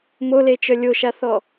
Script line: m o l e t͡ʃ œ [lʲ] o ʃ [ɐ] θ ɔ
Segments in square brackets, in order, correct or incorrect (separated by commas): correct, incorrect